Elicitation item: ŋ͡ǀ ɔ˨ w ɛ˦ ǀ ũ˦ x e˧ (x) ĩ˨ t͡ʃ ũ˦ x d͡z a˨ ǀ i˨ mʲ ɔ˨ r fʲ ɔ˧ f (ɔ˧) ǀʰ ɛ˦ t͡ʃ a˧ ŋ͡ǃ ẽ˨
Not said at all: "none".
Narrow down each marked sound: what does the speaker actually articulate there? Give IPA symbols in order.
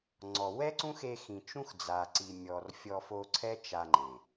x, o˧

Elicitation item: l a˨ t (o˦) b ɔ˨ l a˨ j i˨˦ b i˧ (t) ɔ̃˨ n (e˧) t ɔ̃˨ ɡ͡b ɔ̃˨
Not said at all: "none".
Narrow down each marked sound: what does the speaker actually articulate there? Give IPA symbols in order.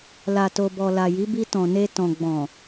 o˨, t, e˧

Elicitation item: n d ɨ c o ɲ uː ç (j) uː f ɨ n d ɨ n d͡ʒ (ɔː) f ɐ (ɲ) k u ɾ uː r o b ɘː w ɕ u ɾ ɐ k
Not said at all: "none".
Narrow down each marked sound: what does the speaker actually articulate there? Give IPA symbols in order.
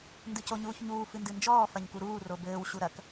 ɲ, ɔː, ɲ

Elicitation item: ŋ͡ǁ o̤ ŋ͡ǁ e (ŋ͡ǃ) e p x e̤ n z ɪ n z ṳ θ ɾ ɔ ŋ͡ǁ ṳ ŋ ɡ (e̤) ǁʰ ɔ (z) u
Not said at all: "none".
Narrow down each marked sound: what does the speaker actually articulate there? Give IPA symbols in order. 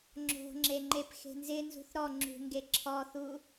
ŋ͡ǃ, e, θ

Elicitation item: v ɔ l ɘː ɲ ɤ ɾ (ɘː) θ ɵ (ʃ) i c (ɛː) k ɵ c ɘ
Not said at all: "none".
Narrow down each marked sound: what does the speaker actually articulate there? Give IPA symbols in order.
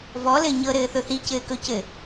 ɘː, θ, ɘː

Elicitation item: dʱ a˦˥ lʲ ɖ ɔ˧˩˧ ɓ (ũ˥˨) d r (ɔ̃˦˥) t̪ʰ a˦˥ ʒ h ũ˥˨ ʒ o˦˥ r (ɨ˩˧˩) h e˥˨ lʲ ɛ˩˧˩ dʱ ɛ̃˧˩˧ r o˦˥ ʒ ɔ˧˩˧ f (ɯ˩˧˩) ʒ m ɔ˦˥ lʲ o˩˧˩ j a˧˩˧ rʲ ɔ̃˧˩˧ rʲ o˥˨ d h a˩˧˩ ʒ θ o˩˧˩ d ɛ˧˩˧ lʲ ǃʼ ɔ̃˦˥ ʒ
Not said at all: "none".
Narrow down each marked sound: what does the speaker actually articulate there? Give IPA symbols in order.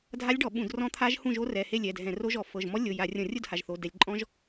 ũ˧˩˧, ɔ̃˦˥, ɛ˩˧˩, ɤ˩˧˩

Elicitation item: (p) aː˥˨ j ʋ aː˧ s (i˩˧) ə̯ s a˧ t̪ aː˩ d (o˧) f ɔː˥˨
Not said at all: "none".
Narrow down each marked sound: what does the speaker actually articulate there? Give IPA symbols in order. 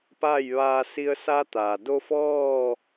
p, i˧, o˧

